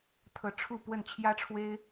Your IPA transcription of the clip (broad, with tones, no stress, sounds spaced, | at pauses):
t̪ʰ ɤ˨˦ ʈ͡ʂʰ u˥˨ p w ə˥˨ n t͡ɕʰ j ä˦ ʈ͡ʂʰ w e˦ ɪ̯